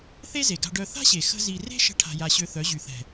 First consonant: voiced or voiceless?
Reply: voiceless